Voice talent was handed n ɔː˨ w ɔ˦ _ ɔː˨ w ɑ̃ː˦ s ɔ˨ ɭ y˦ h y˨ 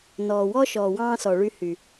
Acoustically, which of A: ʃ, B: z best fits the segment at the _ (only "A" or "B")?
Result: A